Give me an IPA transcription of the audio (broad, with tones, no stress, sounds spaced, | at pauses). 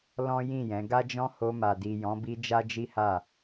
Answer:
l ɔ̃˦ j ĩ˦˨ j ɛ̃˨˦ ɡ a˦ d͡ʒ ɔ̃˦ h o˧ m a˨ d i˨ j ɔ̃˨˦ b i˧ d͡ʒ a˦ d͡ʒ i˦ h a˦˨